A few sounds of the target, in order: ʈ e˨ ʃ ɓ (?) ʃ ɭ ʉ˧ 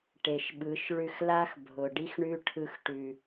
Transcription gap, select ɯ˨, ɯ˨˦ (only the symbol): ɯ˨˦